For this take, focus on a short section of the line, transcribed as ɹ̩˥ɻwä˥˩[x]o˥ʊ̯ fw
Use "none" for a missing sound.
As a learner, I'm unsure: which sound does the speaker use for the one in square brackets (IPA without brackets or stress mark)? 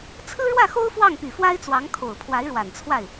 x